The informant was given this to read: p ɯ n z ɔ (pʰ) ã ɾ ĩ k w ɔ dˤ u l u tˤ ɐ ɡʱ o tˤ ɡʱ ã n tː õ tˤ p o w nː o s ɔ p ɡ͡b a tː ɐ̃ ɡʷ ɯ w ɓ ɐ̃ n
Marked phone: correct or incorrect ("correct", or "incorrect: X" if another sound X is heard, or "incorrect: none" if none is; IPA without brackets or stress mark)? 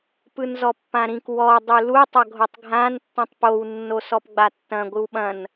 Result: incorrect: pː